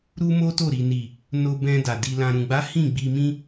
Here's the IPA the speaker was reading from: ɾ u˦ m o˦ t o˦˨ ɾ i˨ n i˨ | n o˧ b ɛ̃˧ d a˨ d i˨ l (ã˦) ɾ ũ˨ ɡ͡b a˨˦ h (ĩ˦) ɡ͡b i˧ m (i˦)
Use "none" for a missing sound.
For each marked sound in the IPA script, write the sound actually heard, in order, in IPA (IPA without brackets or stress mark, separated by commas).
ã˨, ĩ˦˨, ĩ˦